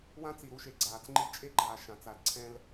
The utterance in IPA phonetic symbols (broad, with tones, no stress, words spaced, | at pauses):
wã˦t͡si˨ ɾu˦ʃe˨ɡ͡ǀaː˨t͡sŋ͡ǃi˦ t͡ʃʼe˦ɡ͡ǃaː˨ ʃã˨t͡sa˨l ǀʰɛ̃˦l